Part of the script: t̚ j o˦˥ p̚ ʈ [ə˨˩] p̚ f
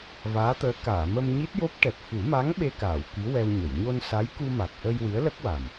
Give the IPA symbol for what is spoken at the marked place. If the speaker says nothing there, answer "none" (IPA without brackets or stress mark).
ɛ˨˩